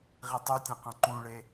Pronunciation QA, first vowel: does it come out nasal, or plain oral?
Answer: oral